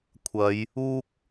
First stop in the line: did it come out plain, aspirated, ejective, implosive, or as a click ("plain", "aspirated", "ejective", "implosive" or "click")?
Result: aspirated